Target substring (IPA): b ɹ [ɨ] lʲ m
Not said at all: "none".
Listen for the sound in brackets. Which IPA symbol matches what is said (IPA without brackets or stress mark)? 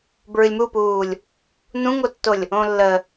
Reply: ɨ